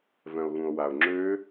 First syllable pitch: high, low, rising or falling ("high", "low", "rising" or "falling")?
low